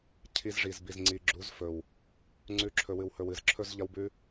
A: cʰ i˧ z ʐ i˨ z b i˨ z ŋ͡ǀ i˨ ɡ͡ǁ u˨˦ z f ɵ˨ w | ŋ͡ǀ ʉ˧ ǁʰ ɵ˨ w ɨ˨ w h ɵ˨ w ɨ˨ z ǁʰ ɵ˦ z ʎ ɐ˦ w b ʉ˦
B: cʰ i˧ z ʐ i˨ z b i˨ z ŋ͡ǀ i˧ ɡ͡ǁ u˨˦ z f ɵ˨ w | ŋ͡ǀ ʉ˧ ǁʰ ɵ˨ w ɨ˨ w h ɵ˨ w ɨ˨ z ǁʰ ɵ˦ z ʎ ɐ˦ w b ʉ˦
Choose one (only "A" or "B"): A